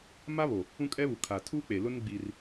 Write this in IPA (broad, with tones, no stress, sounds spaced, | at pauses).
m a˦ β o˨ | ũ˦ kʼ ɛ˦ β u˨ kʰ aː˨ tʰ u˦ k͡p e˨ l ʊ˦ n ɡ͡b i˦ r